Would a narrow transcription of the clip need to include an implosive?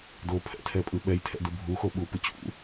yes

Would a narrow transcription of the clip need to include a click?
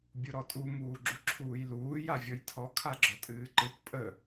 yes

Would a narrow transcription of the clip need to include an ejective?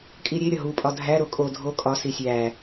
yes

